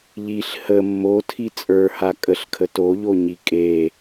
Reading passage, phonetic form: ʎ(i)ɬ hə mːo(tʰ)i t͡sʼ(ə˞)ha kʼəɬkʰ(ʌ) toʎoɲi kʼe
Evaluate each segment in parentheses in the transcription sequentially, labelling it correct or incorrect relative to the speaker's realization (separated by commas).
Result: correct, correct, correct, incorrect